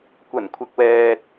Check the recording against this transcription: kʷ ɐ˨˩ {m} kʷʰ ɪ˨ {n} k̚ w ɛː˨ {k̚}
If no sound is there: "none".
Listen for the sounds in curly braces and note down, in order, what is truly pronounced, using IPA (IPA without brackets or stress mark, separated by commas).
n, none, t̚